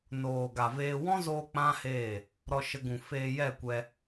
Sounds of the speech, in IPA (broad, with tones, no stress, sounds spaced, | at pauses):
n oː˨ ɡ a˨ v eː˧ w ɔ̃˦ z oː˧ k͡p ã˦ h eː˦˨ | ɾ ɔ˧ ʃ ə˧ ɡ ũ˨ f eː˧ j ɛ˦˨ kʷ ɛ˧